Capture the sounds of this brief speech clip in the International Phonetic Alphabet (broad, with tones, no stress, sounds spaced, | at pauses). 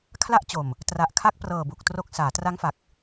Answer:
kʰ l a˦˥ ʔ t͡ɕ o˨˩ m | t r a˨˩ ʔ kʰ a˦˥ k̚ p r ɤː˨˩ b u˨˩ k̚ t r o˦˥ k̚ s aː˩˦ t r a˦˥ ŋ f a˨˩ k̚